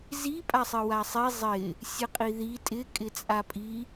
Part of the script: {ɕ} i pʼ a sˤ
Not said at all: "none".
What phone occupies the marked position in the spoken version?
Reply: z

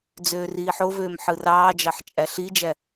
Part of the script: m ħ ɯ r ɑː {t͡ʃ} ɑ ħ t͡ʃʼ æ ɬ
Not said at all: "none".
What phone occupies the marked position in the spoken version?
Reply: d͡ʒ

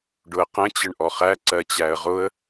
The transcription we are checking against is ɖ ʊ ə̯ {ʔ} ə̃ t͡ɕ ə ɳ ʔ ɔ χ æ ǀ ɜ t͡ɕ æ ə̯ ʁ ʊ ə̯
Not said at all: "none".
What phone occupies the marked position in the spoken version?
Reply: q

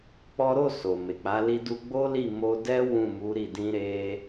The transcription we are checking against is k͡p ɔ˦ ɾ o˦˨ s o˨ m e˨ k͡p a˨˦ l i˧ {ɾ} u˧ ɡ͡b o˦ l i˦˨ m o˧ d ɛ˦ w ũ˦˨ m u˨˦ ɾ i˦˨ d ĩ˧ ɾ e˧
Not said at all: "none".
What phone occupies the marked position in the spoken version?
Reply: d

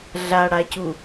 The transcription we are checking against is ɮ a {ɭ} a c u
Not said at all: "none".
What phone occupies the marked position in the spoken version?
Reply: ɽ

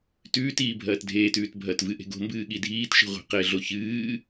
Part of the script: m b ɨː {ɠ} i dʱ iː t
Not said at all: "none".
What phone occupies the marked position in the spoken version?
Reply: ɠ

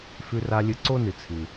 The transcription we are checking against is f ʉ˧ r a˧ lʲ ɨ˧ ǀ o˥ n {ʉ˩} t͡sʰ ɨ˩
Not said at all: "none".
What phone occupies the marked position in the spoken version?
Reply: ɨ˩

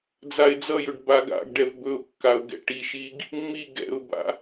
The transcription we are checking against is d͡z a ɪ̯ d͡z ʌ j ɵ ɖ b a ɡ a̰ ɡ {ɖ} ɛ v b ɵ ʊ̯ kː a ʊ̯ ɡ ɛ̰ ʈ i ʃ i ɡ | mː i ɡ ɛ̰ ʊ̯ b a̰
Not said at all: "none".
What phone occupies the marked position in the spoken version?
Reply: ɖ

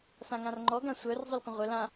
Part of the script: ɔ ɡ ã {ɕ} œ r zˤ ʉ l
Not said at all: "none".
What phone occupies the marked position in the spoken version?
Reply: sʷ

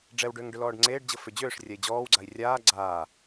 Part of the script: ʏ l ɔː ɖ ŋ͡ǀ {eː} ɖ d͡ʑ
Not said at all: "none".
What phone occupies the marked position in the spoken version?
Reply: eː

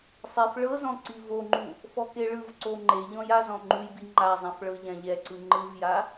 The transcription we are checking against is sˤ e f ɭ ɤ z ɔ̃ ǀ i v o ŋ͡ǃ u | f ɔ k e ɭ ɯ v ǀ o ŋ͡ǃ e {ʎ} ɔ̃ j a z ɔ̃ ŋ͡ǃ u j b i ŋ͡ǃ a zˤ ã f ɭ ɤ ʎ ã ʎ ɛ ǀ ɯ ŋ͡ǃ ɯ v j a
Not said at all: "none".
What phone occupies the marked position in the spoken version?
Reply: ʎ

